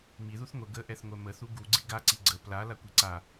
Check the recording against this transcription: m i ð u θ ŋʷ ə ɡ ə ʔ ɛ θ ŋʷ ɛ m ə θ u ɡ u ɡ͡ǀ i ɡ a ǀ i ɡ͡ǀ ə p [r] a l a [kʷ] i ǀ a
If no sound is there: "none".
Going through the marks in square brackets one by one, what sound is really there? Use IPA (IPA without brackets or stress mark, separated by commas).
l, kʷ